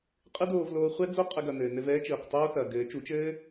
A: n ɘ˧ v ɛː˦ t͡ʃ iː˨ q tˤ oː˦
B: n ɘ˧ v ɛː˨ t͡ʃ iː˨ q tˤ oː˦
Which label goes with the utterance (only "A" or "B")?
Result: A